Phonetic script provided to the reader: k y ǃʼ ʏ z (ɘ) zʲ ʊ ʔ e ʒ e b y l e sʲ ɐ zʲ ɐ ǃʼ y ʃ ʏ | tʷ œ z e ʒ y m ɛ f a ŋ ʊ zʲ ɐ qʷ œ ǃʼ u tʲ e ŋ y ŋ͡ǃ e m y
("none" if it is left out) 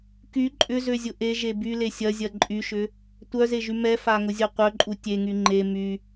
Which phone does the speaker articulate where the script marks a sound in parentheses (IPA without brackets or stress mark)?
ø